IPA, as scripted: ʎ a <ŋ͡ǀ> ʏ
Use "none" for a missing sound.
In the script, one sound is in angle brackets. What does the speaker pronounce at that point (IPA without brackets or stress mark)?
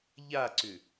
ǀ